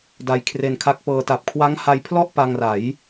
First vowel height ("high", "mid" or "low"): low